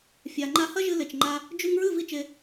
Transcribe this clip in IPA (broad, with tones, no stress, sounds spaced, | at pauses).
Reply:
fʲ a˨ ŋ͡ǃ a˧ h ɐ˦ ʒ ɨ˧ l e˨ t͡ʃ ŋ͡ǃ a˧ | d͡ʒ ʉ˧ ŋ ɹ ɨ˦˨ v i˦ t͡ʃ e˧